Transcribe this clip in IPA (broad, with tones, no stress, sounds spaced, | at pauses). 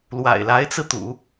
l w a̰˨˩ ɪ̯ l a˧˥ ɪ̯ t͡s ɹ̩˧ t̪ ṵ˨˩˦